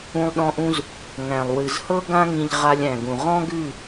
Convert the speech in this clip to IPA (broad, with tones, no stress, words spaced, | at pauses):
ũ˧lˠɗɔ̃˧ʔũ˧z | ŋæ̃˨lˠwɨ˨zhɤ˦ ɡã˧ŋĩ˨ʎ ʁa˧lʲæ̃˨ɡũ˨ ʁɔ̃˦ɡʉ˦˨